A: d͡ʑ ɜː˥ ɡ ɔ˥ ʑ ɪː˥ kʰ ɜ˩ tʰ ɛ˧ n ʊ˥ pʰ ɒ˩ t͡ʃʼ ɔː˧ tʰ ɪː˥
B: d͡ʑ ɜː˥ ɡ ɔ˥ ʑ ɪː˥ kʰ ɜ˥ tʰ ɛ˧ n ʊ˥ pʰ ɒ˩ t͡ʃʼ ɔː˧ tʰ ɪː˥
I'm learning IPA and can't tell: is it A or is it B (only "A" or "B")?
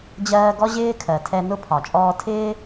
A